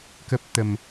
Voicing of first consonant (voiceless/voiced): voiceless